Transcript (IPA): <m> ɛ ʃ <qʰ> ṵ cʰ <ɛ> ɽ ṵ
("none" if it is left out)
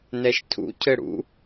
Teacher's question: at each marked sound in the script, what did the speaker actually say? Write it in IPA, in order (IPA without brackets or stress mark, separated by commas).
n, tʰ, ɘ